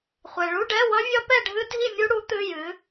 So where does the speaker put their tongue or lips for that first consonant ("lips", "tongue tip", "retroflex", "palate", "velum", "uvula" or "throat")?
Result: uvula